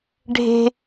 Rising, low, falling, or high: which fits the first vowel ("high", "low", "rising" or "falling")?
high